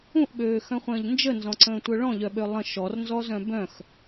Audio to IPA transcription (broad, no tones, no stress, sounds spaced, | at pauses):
ũ ʔ ɓ øː x œ̃ χʷ ə̃ː ʎ n d͡ʒ ə n z ɔ̃ ǀ ə̃ː tʷ œ ɭ ɔ̃ ʎ œ ɓ ø lˠ ə̃ ʃ ɔ r n z ɔ z œ̃ b œ̃ x